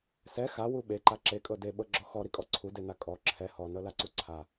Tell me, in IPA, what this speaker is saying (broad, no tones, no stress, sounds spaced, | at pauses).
s ɛ x a w u ɓ e ǃ a ǁ e kʼ ɤ d e ɓ ɤ ɡ͡ǁ ɔ x ɔ ɾ i kʼ ɔ ǀʰ u d e n a kʼ ɔ ǁʰ ɛ h ɔ n ɤ l a ǀ u ǀʰ a